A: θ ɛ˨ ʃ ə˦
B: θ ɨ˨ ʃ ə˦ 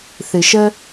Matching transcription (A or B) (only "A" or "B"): B